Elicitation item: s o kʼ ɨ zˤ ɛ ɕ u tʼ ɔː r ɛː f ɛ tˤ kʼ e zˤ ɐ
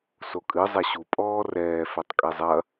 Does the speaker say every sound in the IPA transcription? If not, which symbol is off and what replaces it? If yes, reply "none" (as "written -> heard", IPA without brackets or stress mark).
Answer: tʼ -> pʼ